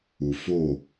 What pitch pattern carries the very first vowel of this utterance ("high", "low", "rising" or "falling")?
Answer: low